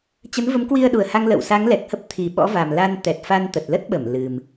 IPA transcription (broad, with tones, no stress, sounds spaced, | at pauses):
t͡ɕ ə˨˦ n v ə˨˦ m k w i˧ ə̯ ɗ u˨˩ ə̯ h a˧ ŋ l ə̰˧˨ w s a˨˦ ŋ l ɛ˨˩ k̚ h ə˦˥ p̚ t̪ʰ i˨˩ ɓ ɔ̰˧˥ v a˨˩ m l a˧ n t̪ ɛ˨˩ t̚ f a˧ n t̪ ə˨˩ t̚ l ə˦˥ t̚ ɓ ə˧˩ m l ɨ˨˩ m